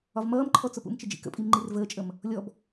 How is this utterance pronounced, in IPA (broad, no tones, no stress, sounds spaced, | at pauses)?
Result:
ɒ v m ʌː m ǃʰ ɔ t͡s ʊ p ṵ m t͡ʃ ɪ d͡ʒ ḭ k ə̰ pʼ i m ŋ͡ǃ i r v əː t͡ʃʼ ə m | lʲ ɔ b